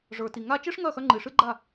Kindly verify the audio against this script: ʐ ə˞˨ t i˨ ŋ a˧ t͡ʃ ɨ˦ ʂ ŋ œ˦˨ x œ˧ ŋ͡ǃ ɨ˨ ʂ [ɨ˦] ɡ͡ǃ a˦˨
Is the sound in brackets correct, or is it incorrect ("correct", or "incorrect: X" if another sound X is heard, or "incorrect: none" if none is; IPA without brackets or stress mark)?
correct